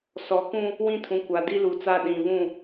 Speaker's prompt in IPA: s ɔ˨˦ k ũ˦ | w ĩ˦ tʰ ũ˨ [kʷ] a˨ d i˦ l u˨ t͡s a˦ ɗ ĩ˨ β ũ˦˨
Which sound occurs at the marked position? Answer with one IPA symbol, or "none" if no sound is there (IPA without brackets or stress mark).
kʷ